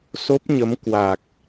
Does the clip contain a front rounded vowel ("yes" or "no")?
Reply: no